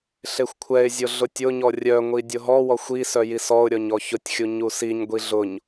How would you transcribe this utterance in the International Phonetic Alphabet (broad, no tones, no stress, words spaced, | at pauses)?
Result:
ɬexʷkʷʰɛɪ̯zʲʊ ɮʊtʲʊɲɔ rʲœŋʷi dʲʊɦɔwɔxʷ isœ jisɔʊ̯ɾʲɔɲ ɔçʊtʲxʲu ɲusiɲɡʷi ɮʊɲ